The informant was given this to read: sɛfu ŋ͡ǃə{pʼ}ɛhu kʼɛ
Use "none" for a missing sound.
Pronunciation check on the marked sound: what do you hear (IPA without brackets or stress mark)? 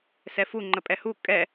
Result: pʼ